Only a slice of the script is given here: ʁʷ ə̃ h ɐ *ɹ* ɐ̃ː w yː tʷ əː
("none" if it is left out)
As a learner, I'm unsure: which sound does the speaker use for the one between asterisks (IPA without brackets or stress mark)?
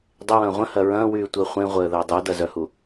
ɹ